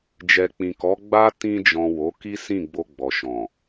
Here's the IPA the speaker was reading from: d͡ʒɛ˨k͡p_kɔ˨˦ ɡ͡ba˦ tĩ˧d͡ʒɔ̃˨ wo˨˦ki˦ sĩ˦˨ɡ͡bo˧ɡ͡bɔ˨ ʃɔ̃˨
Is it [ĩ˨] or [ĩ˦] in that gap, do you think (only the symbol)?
ĩ˨